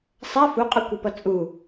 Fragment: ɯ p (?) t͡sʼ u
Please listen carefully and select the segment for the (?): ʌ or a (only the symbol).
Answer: ʌ